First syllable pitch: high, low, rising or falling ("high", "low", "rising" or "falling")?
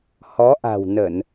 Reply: rising